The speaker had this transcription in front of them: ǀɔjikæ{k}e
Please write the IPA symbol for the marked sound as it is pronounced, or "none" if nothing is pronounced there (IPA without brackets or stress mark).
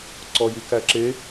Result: ǁ